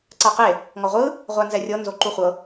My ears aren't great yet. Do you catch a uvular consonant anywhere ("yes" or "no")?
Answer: yes